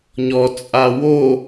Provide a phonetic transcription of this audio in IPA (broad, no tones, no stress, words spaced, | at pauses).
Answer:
ɲɔ t͡sʼawo